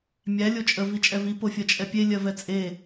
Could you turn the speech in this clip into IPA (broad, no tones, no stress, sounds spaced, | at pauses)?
mʲ æ lʲ o t͡ʃʼ ə v i t͡ʃʼ ɛ v i p o fʲ ɜ t͡ʃʼ ɛ pʲ e lʲ ɜ v ɛ t͡sʼ e